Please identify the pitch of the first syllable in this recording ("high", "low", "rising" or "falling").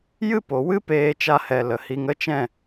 high